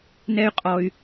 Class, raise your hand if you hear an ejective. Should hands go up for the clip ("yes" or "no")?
yes